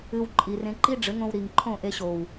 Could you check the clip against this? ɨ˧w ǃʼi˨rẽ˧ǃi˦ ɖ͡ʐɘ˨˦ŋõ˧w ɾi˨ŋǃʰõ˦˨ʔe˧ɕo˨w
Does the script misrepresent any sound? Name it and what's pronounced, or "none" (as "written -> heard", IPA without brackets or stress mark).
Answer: none